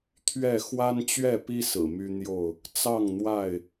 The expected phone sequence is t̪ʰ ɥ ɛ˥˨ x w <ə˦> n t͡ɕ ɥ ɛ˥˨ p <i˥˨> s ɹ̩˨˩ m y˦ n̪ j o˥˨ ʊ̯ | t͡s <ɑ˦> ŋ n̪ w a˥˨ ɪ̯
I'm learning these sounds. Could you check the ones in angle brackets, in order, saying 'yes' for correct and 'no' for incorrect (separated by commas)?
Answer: no, no, no